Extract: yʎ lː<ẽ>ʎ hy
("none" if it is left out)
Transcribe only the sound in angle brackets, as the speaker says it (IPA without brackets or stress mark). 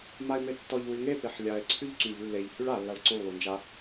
e